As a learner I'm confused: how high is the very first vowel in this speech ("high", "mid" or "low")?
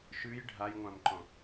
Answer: high